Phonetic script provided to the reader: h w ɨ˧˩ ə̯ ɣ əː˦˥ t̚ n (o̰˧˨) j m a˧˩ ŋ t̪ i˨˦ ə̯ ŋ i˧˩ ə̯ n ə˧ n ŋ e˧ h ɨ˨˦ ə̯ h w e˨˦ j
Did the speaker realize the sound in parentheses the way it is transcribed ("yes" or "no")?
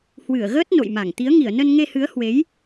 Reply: yes